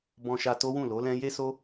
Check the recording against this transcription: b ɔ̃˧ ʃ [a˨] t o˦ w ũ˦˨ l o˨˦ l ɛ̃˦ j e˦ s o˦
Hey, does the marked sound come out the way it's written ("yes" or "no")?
no